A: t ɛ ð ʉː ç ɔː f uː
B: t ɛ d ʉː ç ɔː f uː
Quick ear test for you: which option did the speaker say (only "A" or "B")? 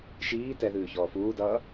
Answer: A